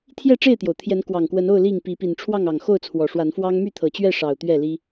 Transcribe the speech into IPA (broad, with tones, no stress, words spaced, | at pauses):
t̪ʰjɛ˥˨ʈ͡ʂe˥˨ɪ̯t̪jo˩ʊ̯ t̪ʰjɛ˨˦nkwɑ˨˩ŋkwə˨˦no˥˨ʊ̯ li˥˨ŋpi˨˦ pi˨˩nʈ͡ʂʰwɑ˥˨ŋɑ˨˩ŋ xo˥˨ʊ̯t͡sʰwɔ˨˩ʂwa˨˦nfwɑ˦ŋ my˥˨t̪ʰɤ˨˩t͡ɕɥɛ˥˨ʂɑ˨˩ʊ̯ t̪ɥɛ˥˨li˦